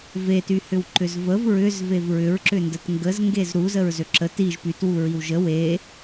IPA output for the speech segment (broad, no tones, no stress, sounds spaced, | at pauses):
v e t y h ʏ w ǃ ʏ z v ə v ɹ ʏ z v e v ɹ ʏ ɹ ǁ ʏ n d ə t ŋ ɡ ə z ŋ ɡ e z ɾ u z ə ɹ z ø ǁ ə t i ʒ p y t w u ɹ i w ʒ ə w e